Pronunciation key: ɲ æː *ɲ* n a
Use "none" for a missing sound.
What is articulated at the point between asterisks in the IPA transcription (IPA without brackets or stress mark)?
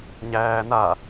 none